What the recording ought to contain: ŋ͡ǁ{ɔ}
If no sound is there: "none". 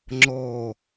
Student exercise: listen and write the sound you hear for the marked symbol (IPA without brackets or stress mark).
ɔ